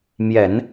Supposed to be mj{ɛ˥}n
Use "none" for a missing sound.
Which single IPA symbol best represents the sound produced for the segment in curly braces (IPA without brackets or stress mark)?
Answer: ɛ˨˩˦